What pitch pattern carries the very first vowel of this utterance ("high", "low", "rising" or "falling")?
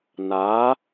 rising